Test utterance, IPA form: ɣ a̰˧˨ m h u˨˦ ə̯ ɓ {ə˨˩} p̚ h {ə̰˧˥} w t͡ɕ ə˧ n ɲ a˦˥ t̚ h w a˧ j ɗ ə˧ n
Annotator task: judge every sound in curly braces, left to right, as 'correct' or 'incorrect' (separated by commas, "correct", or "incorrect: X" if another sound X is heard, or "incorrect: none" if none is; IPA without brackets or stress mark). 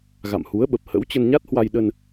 correct, correct